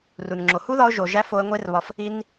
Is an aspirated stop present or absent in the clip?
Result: absent